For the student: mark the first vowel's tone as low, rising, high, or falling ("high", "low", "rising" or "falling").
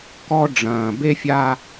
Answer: high